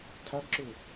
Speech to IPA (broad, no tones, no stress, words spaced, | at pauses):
tʰaɡǁɵ